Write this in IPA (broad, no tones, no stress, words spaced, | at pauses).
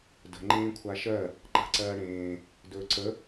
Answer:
də̤ ŋ͡ǃẽːkʷʰaʃɜ | ǃa̤ǀɜːɽẽː | dɵːǀə